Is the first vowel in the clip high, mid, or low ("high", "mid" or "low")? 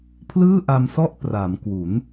high